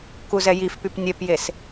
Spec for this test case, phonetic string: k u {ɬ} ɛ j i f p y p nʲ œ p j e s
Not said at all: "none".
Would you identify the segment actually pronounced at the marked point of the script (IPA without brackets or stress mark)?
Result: z